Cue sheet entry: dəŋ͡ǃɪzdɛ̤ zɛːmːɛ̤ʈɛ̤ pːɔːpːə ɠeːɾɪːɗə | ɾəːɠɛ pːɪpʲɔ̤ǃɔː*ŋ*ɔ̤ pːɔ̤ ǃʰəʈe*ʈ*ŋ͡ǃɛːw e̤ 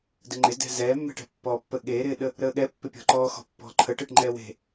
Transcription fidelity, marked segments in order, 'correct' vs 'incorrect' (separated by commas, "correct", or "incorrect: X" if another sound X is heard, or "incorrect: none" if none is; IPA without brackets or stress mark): incorrect: x, correct